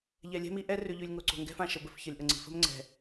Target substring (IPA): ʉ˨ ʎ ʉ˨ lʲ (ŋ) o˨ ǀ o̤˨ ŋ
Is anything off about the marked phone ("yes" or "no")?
no